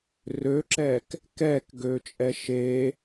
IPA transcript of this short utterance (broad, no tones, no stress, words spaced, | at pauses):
røǁɛːk | kɛːkɡøːt͡ʃʼɛ ʃe